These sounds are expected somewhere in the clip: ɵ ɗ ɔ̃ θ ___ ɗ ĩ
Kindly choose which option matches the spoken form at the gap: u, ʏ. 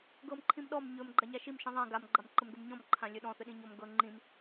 ʏ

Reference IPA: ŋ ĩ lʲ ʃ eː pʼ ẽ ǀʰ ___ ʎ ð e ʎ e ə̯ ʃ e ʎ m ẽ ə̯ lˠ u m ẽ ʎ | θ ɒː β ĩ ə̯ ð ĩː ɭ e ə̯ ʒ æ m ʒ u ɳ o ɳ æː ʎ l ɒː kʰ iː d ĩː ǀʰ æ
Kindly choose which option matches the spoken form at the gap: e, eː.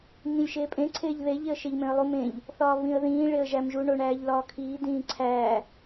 eː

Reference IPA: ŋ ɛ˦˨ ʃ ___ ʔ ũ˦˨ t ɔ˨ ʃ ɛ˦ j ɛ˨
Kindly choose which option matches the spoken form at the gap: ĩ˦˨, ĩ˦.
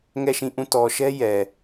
ĩ˦˨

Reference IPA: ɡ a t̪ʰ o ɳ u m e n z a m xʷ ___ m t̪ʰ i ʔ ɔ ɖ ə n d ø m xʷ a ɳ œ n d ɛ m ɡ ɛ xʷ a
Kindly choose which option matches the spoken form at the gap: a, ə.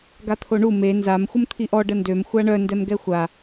ə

